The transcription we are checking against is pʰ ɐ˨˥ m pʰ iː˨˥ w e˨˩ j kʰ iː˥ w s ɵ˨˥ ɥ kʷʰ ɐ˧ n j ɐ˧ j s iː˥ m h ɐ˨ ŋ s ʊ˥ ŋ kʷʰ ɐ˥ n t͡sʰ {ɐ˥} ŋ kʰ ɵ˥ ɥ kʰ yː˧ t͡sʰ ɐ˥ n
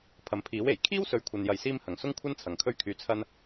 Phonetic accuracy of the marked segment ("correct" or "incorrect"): incorrect